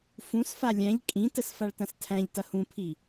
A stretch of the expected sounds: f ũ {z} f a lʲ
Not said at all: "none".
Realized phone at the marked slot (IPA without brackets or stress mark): s